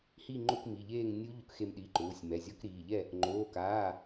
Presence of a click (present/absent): present